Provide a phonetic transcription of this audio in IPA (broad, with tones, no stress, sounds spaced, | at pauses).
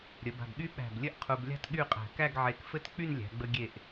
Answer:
ɾʲ ə˩˧ b a̤˧˩ b ɠ y˥ ɓ æ̤˧˩ b lʲ ɘ˥ ʔ qʰ u˧ b lʲ a̤˥ t ɠ y˥˧ qʼ æ̤˧˩ k æ˥˧ ɡ ʕ e˧˩ k f ɘ˥ t k͡p y˥˧ n lʲ æ̤˩˧ ɡ͡b ə˧ ɡʲ e˧˩ ʔ